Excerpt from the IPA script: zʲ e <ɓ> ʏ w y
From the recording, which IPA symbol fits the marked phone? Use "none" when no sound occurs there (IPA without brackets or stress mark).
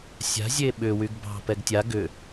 ɓ